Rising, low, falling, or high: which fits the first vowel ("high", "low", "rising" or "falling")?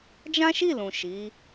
high